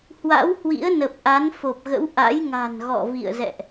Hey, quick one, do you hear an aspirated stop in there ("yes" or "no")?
no